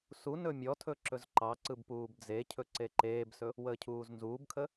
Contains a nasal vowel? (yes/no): no